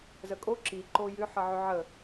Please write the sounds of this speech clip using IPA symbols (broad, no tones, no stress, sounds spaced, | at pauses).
z ə kʼ o ǁ i ǃ o j ʏ ħ ʌ ʕ ʏ ʕ ə